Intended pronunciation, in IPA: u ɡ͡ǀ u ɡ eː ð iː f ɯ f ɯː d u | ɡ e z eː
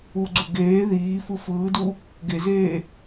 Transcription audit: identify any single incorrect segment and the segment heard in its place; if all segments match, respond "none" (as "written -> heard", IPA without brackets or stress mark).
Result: none